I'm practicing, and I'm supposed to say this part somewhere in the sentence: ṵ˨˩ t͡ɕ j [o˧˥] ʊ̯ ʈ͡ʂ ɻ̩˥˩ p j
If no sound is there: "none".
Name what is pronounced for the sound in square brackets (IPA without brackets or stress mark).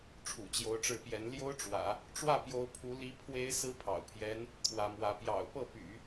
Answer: o˧˥